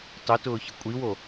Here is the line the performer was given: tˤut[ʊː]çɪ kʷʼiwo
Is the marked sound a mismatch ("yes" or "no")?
no